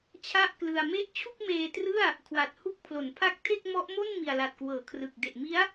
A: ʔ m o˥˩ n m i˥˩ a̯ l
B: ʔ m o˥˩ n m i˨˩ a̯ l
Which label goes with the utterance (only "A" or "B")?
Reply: B